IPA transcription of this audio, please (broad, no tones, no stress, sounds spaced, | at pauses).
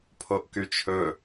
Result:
pʰ o ʔ k y t͡ʃʰ ɵ